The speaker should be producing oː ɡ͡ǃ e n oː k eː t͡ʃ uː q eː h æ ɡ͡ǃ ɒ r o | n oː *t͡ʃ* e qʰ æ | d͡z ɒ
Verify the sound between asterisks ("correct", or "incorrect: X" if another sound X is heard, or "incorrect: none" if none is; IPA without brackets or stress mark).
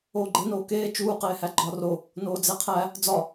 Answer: incorrect: d͡z